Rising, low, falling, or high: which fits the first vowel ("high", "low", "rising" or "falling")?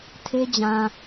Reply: high